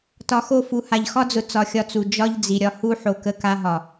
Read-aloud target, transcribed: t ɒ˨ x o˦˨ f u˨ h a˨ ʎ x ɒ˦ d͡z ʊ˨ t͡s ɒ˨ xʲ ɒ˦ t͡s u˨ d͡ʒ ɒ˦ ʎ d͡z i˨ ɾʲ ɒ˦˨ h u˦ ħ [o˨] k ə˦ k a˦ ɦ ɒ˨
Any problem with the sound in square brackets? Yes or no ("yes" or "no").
no